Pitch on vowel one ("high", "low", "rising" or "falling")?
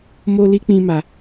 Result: high